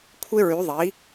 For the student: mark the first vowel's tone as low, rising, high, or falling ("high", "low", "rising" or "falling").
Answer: high